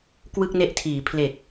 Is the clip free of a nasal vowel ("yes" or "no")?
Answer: yes